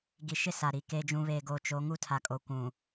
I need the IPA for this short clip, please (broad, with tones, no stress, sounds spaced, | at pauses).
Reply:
ɡ i˨ ʃ ɪ˦˨ s a˨ ɾ i˨ k eː˦ d͡ʒ ũ˨ β eː˨ ɡ oː˨ t͡ʃ o˨˦ ŋ u˦ tʰ a˨ kʼ o˨ kʷ ũ˨